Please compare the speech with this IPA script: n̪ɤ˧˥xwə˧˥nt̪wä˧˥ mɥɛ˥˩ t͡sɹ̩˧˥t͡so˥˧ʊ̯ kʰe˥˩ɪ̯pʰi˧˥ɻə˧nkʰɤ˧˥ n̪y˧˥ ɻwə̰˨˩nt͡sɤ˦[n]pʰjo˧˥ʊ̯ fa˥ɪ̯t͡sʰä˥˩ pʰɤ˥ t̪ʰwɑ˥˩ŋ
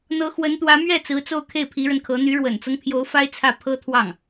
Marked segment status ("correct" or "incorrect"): incorrect